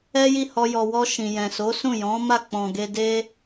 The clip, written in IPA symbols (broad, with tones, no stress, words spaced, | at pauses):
ɛ˦ji˦˨hɔ˧ jɔ˨wɔ˧ ʃĩ˨jɛ̃˨so˨˦sũ˦˨ jɔ̃˨˦ ma˦˨ k͡pɔ̃˨ɡe˧de˦